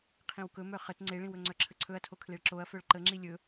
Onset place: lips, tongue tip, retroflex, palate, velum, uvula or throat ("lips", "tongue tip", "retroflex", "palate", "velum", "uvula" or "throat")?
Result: uvula